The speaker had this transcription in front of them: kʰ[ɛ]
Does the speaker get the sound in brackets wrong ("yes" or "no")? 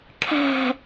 yes